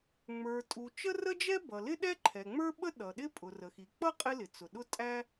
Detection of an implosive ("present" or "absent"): present